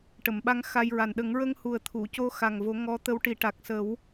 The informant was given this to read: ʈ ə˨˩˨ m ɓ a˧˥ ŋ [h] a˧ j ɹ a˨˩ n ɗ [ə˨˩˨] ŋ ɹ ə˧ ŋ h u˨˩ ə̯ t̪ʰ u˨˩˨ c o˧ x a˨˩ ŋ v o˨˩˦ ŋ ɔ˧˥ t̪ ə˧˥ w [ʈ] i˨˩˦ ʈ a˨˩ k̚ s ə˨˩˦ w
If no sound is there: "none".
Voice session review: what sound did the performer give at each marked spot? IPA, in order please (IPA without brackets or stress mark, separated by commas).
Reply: x, ə˨˩˦, ʈ